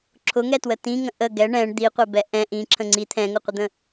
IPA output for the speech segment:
ǁʰʊŋɛtwə tĩŋə̃ ʔə ɡɛ ɳɛ̃ɳ d̪iqʷɛbɛ ʔɛ̃ ʔĩǁʰə̃ ŋ͡ǀi t̪ʰɛ̃ŋʊqʷəd̪ə̃

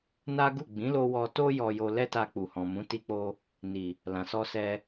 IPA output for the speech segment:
na˦ɡu˦˨ ɡ͡bĩ˨˦lo˧ wɔ˧to˦ jɔ˧jo˧ lɛ˦ta˧k͡pu˨hɔ̃˨ mũ˨˦ti˧k͡po˧ | ni˨ | lã˨sɔ˧sɛ˧

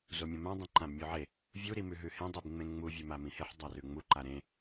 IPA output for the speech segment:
zomʲõmã dˤĩǃãbmʲʉʕe | vʲu ɾimʉɦʉhẽ dˤibŋ͡mẽŋ͡mu vʲʉmamĩheħ dˤarʉŋ͡mu ǃaɾẽ

